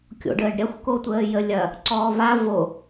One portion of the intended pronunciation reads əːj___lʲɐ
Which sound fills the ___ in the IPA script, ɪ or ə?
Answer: ə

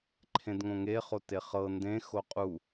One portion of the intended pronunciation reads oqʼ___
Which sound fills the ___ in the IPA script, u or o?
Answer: u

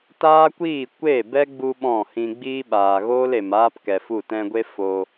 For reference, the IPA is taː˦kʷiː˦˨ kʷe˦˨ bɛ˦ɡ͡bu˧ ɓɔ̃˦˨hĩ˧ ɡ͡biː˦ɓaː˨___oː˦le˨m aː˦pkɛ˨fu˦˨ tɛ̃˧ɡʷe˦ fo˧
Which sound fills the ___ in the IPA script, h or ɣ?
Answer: ɣ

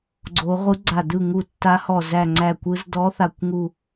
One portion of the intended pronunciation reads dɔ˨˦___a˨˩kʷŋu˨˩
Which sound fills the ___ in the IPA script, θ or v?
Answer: θ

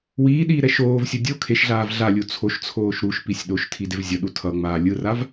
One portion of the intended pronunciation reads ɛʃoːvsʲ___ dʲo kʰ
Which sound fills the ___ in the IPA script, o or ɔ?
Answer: o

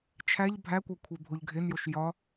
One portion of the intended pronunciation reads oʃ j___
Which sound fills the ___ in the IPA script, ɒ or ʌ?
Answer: ɒ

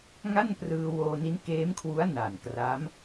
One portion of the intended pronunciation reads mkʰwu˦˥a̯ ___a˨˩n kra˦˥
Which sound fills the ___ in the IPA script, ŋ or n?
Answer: n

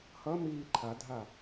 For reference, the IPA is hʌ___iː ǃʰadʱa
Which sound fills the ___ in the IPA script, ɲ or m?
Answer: m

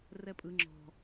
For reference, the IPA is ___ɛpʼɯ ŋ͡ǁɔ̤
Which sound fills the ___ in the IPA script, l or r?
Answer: r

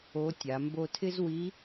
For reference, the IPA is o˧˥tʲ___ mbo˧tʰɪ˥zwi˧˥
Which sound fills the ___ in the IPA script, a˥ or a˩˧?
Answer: a˩˧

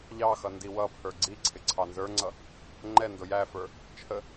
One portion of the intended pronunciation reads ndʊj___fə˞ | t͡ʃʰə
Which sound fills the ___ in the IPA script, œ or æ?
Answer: æ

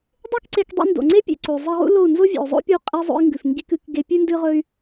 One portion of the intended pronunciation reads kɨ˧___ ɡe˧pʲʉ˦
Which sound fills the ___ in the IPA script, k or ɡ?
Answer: k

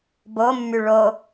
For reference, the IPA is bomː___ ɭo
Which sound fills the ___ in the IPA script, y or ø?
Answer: y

